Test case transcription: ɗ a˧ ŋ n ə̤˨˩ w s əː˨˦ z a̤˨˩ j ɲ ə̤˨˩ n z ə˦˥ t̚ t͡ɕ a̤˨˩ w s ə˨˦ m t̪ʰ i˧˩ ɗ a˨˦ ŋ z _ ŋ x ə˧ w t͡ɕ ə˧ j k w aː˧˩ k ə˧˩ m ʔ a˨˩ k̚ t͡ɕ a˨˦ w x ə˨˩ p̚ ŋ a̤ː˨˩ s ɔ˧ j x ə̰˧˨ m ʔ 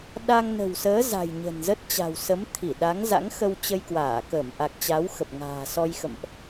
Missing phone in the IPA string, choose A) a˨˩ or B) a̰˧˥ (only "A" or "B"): B